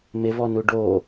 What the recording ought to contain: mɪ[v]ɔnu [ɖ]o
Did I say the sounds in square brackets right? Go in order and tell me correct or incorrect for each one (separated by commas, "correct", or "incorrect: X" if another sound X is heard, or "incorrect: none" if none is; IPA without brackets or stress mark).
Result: correct, correct